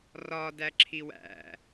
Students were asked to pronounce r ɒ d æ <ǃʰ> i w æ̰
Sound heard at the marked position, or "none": ǁʰ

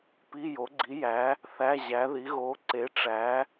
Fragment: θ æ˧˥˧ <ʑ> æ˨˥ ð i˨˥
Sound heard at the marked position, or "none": ʑ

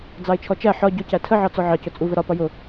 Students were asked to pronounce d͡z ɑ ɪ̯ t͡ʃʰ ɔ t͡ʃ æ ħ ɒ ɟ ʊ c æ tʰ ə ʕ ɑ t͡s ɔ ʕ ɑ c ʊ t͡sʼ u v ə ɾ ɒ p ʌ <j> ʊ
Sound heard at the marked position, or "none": j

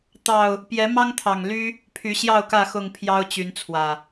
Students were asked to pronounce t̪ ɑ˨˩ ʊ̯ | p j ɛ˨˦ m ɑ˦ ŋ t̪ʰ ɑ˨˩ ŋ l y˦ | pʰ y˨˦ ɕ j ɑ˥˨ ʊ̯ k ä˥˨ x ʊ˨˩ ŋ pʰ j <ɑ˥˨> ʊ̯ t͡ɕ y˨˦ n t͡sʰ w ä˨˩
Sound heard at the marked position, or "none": ɑ˦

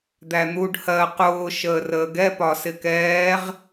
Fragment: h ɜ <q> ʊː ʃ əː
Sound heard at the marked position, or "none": q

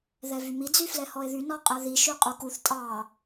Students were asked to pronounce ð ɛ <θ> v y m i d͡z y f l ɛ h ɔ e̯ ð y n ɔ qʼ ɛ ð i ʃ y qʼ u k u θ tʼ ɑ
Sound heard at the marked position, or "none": none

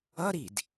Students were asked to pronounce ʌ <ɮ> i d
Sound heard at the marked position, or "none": ɾ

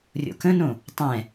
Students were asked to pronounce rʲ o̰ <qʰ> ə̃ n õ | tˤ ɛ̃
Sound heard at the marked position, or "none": k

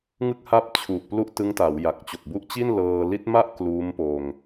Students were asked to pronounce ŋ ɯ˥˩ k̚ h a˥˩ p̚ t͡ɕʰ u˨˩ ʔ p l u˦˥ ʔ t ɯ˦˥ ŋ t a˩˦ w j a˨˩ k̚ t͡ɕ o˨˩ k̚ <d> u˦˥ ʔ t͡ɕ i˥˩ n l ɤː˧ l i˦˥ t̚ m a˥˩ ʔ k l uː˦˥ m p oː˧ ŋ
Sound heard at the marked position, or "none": b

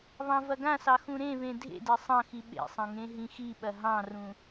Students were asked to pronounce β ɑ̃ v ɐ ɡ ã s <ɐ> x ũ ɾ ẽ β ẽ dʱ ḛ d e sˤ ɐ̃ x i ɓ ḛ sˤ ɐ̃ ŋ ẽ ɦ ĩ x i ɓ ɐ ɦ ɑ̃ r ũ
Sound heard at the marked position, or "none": ɑ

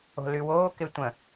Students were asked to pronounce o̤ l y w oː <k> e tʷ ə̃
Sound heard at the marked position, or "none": k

